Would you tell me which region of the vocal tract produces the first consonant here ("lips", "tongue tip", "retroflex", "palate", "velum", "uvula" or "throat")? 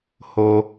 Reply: throat